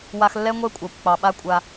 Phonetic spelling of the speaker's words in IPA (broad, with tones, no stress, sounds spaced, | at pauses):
w a˧ x lː ɛ˦ ŋʷ ɛ˦ kʷʼ ɑ˨ kʷ k͡p ɑ˨ ɓ a˦ kʷʼ a˧